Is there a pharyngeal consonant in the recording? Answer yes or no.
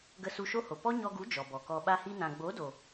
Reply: no